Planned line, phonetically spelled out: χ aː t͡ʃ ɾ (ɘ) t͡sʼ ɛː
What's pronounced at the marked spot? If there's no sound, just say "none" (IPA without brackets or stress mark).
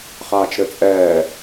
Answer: ɘ